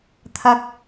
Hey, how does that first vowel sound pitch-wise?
high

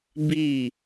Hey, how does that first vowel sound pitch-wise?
falling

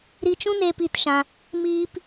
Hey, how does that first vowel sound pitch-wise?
high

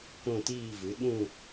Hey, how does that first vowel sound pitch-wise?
falling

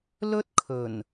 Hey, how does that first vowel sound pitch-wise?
high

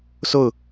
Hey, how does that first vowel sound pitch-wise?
falling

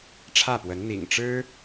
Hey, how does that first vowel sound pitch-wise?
falling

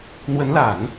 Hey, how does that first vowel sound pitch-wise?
rising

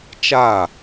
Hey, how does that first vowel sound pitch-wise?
falling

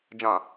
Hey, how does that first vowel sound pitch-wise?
low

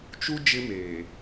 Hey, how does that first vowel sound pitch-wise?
high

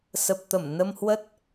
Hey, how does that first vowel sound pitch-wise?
low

